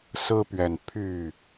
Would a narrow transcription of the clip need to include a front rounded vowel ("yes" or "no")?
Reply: yes